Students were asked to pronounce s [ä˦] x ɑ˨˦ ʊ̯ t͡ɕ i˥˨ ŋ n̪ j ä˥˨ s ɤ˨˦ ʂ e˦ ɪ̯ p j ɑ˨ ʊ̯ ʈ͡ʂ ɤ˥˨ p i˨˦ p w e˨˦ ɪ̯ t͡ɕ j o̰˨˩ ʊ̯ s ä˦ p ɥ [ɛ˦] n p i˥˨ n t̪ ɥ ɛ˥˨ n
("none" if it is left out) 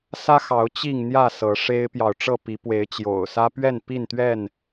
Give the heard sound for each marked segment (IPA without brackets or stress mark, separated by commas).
ä˦, ɛ˥˨